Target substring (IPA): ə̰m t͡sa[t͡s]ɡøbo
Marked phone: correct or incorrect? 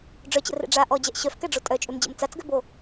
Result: correct